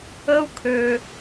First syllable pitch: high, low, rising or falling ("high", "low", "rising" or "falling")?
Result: high